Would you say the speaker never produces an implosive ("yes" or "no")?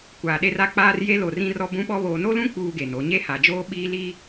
no